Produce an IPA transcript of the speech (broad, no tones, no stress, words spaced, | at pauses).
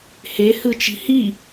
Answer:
hehɯt͡ʃi̤ hi